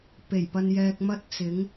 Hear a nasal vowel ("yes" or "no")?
no